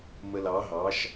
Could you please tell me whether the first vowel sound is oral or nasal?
oral